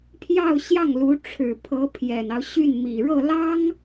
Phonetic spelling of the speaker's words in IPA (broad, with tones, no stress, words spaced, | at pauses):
pʰjɑ˥˧ʊ̯ɕjɑ˥˩ŋ lu˧˥ʈ͡ʂʰɻ̩˨˩pʰɤ˧˥ pʰjɛ˨˩nɑ˦ʊ̯ ɕy˥˩nmi˨˩ ɻɤ˥˩lɑ˥ŋ